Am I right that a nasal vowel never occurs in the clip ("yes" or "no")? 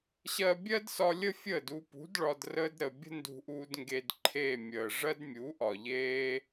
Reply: yes